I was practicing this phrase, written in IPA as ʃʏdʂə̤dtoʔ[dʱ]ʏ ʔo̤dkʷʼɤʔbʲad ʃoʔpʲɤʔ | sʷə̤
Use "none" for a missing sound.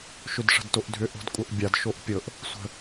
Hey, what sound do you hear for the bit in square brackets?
dʱ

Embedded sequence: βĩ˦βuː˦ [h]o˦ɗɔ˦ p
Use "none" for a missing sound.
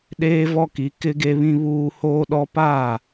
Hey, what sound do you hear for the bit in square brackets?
h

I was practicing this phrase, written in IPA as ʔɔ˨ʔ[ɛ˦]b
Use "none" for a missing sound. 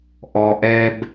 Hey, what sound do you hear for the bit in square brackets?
ɛ˦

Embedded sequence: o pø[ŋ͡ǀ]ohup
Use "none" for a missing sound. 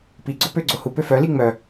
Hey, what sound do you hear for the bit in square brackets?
ɡ͡ǀ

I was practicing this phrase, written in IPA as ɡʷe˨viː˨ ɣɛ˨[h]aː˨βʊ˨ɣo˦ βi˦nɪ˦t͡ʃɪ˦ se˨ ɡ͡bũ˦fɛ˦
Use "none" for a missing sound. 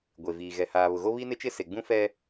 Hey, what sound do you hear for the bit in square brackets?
h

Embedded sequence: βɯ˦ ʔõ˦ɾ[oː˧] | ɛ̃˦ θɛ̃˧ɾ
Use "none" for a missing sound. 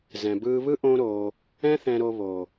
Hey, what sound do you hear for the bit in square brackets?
oː˧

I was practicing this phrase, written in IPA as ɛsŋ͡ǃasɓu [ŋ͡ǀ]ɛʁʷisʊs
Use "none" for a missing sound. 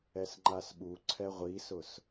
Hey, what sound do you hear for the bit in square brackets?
ǀʰ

